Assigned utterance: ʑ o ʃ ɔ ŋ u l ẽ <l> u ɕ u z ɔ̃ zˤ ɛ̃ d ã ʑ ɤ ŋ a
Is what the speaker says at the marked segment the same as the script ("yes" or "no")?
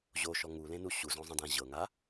no